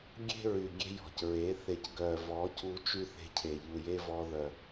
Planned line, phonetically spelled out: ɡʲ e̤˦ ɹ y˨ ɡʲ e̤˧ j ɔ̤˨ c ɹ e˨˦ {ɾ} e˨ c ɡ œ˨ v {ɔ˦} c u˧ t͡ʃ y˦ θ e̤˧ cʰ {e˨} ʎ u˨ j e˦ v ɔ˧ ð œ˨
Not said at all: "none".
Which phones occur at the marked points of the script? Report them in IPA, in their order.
θ, ɔ˨˦, e˨

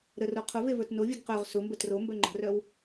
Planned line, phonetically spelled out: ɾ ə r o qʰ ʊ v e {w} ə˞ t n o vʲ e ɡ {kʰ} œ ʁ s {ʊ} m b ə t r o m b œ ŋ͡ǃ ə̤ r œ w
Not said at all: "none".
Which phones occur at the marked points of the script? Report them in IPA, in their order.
v, q, ʊ

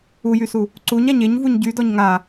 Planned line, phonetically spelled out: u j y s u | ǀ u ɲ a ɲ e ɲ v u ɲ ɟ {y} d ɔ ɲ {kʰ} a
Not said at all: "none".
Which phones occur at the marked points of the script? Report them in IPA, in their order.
y, ŋ

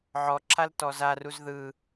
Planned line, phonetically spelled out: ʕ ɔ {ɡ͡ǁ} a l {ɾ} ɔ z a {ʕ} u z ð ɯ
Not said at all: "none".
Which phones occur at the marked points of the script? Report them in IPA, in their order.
ǁʰ, t, r

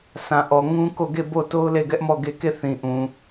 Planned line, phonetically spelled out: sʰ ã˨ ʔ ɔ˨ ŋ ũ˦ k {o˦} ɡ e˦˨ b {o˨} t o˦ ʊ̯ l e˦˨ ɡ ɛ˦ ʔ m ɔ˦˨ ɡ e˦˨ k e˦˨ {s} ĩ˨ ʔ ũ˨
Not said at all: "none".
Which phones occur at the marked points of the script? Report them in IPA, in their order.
o˦˨, o˦˨, θ

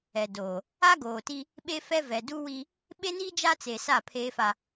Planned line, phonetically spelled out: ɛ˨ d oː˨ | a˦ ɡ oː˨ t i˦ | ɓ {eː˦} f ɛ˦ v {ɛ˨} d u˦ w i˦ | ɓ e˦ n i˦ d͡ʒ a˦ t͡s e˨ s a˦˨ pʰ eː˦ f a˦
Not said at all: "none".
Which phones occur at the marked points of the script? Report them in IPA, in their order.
e˦, ɛ˨

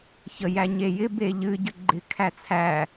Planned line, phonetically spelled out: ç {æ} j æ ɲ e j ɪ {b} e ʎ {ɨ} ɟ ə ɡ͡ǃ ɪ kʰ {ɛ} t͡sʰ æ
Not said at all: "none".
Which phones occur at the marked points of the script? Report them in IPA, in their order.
ə, b, ɨ, æ

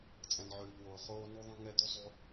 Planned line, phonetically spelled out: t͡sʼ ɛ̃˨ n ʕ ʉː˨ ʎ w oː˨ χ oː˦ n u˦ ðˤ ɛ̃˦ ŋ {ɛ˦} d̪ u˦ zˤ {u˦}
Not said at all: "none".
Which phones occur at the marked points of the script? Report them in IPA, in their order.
ɛ˦, u˦

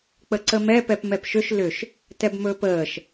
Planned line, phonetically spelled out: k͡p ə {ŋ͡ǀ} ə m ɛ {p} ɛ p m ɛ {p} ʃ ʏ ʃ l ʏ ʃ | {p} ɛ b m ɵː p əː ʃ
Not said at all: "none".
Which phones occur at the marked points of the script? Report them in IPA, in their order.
ǀ, p, p, t

